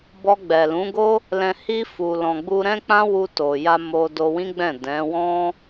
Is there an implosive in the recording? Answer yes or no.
no